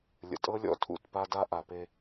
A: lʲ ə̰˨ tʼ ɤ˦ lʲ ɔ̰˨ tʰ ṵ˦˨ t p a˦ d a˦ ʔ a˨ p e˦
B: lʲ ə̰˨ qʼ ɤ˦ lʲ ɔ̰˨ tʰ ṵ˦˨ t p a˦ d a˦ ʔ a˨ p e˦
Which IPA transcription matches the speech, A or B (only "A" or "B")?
A